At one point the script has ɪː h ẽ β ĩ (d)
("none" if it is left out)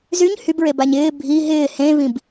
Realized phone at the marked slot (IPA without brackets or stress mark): b